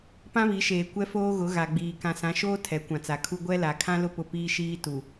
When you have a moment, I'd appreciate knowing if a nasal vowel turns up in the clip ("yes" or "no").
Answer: yes